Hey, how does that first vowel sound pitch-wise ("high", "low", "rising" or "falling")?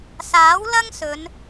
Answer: rising